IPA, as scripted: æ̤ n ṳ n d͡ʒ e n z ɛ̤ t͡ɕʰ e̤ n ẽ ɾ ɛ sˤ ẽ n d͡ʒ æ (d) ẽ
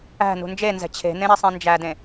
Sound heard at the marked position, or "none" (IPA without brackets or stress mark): d